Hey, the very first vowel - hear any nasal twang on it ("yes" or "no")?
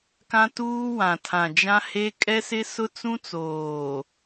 yes